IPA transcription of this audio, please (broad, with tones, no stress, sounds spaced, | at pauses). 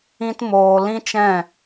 ĩ˦ t m oː˧ l ĩ˦ t͡ʃ ɛ̃˦˨